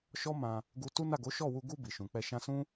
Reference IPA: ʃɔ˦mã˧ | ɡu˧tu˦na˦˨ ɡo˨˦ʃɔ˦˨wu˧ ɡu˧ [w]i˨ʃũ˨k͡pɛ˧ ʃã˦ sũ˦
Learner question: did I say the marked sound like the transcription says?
no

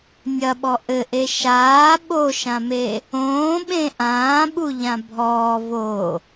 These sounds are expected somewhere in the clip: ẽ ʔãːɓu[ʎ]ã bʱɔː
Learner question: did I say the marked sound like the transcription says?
yes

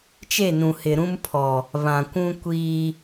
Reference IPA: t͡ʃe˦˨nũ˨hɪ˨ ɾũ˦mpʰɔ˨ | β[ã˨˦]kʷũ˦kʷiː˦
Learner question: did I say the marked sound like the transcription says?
no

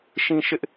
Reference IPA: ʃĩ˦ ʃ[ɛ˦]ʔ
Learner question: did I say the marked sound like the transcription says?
no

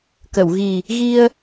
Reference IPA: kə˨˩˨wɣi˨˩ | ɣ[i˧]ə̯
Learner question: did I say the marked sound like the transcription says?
yes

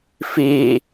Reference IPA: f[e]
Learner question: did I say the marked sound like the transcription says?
yes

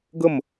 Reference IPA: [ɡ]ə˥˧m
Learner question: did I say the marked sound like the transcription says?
yes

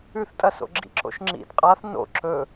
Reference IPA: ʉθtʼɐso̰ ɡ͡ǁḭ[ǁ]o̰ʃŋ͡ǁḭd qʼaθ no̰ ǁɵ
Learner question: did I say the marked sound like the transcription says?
yes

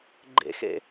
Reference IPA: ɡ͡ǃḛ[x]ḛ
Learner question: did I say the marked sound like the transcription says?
yes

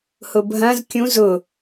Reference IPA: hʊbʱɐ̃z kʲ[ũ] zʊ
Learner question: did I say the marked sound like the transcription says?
yes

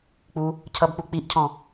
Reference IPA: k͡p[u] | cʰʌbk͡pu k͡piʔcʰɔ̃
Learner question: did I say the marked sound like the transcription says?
yes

